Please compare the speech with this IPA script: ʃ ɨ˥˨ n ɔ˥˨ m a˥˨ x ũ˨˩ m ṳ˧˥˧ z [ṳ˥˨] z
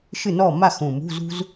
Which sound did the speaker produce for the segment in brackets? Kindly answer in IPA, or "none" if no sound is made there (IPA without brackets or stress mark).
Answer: ṳ˥